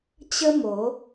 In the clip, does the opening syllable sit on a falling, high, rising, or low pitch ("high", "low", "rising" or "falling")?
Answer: high